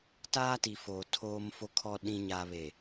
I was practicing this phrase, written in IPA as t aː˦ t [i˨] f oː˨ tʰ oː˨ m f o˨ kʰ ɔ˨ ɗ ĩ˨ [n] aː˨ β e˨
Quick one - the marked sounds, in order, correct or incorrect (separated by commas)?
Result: correct, incorrect